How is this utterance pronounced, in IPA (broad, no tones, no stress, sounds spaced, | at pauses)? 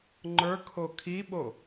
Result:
ŋ͡ǃ ə˞ kʰ o kʰ i ɓ o